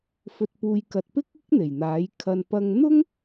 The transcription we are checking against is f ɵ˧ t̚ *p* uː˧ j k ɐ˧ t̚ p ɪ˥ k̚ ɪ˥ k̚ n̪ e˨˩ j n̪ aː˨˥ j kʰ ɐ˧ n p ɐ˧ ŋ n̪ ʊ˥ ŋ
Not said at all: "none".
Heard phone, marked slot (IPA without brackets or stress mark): p